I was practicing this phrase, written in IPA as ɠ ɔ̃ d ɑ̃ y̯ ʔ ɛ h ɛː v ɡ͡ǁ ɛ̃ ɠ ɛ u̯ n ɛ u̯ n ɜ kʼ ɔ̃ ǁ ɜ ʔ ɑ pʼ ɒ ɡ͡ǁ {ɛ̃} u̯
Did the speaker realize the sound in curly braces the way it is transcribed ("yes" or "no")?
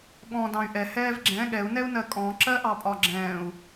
no